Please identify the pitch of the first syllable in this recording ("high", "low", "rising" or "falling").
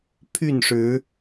falling